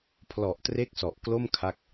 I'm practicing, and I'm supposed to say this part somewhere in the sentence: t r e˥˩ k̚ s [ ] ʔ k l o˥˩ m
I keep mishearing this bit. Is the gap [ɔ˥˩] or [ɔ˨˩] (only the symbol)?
ɔ˨˩